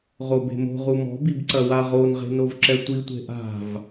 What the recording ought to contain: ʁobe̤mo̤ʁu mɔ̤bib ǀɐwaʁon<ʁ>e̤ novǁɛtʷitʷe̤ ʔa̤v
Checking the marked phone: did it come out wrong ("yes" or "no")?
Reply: no